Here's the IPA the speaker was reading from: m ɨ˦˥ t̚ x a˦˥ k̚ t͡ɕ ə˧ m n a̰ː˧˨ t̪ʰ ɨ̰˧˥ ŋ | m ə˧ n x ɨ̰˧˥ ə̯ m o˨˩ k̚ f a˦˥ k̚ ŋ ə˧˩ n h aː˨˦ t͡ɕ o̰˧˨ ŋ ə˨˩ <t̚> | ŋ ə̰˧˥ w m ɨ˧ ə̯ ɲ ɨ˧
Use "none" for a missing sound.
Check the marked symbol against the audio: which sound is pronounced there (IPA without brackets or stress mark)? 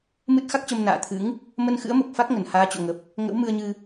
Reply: p̚